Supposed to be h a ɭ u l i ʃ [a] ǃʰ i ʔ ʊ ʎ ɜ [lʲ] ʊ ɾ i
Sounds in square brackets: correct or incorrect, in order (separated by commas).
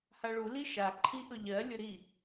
correct, correct